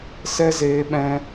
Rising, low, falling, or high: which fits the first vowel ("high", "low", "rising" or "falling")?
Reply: high